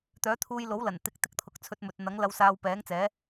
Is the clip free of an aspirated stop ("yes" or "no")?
no